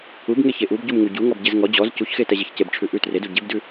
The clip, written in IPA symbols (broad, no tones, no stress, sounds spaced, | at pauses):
u b ŋ e ç e ʔ u b ɟ u m ŋ u ɟ u ŋ ɔ b ɟ e z ŋ ɔ d͡ʑ ɔ z c u ç x e t ɛ ʑ e ç c e b ʈ͡ʂʰ ʉ ʔ ʉ t r e d u ɟ e b d ʉ